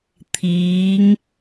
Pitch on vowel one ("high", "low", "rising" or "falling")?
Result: rising